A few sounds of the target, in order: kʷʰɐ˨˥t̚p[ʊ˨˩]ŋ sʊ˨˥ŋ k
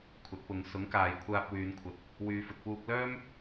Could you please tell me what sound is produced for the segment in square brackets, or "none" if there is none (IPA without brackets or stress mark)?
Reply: ʊ˨˧